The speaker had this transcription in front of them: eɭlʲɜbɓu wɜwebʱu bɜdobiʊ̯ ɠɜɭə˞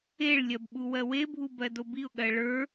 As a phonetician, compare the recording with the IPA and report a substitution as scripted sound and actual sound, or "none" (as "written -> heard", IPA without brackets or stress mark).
none